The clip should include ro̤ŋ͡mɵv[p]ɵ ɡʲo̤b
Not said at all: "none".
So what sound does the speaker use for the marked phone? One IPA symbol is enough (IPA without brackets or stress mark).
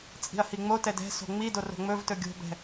t